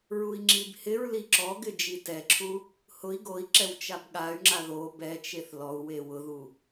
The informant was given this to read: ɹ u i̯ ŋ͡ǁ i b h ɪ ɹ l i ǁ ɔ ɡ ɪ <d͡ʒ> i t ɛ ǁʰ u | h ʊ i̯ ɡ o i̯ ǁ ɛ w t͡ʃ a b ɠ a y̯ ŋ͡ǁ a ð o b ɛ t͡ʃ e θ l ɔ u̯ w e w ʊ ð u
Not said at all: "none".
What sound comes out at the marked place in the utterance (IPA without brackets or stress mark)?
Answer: d͡ʒ